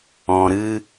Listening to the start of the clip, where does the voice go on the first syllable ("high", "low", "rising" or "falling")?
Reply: low